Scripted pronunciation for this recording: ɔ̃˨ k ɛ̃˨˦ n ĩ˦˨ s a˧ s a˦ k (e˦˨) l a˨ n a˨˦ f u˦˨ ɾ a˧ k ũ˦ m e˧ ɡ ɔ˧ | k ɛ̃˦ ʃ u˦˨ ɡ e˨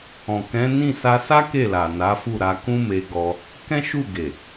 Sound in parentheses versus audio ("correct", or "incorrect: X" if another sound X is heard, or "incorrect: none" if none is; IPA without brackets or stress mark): correct